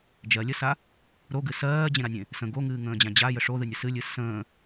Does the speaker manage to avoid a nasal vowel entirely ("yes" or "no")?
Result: no